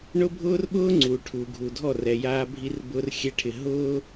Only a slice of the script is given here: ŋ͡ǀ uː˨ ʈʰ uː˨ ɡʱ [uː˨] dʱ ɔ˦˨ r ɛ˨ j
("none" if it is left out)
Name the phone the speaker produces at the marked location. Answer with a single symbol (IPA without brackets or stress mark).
uː˨